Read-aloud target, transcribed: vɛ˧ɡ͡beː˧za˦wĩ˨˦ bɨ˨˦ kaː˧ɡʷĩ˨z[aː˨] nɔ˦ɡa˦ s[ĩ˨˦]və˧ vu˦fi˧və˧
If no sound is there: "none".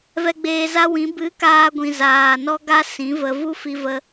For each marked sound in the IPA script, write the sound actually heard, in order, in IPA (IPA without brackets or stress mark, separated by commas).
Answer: aː˨, ĩ˨˦